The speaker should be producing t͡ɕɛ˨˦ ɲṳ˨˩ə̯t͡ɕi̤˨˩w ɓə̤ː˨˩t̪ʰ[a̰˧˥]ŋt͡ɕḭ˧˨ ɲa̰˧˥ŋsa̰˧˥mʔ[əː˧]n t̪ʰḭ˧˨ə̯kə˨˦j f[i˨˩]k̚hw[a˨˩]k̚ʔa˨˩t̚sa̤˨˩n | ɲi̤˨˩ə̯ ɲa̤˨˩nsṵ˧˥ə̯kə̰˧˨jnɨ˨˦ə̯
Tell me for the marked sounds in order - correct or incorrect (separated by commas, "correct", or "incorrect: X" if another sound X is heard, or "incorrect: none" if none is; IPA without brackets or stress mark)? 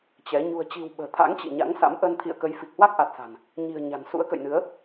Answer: correct, incorrect: ə˧, correct, incorrect: a˦˥